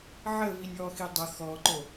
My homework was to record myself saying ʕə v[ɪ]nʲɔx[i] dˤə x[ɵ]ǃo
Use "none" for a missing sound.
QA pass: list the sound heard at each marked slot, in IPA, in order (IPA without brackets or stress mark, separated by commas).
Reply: i, i, ɔ